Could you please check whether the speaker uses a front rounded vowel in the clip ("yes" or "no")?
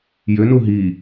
yes